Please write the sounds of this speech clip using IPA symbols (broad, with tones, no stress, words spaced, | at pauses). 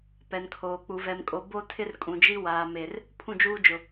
pɛ˨nkʰoː˨k͡pu˨ vɛ˨mkʼo˨˦ bo˦ tʰɪ˦rkʼũ˨d͡ʒi˦ waː˨ me˨r | pʰũ˦˨d͡ʒuː˦d͡ʒʊ˨